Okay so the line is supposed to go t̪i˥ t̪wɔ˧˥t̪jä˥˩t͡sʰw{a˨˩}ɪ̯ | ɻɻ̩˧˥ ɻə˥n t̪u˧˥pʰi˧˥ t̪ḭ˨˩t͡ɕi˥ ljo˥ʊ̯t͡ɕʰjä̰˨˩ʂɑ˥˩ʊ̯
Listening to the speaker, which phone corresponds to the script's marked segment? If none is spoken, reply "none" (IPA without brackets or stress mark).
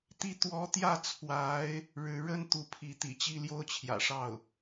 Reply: a˧˥